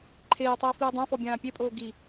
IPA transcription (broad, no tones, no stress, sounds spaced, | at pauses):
ǃʰ eː tˤ iː f iː dˤ ã f ɔ bʲ ãː pʲ e pʼ oː ɡ i